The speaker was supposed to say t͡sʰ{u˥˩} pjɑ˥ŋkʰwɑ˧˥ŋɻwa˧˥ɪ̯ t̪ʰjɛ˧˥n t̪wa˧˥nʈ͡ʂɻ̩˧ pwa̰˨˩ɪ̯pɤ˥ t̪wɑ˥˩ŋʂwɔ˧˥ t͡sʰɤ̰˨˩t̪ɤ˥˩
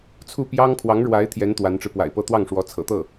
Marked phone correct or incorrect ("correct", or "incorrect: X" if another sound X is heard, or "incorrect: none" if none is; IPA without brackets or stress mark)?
correct